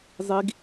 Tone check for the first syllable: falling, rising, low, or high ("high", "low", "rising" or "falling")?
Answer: high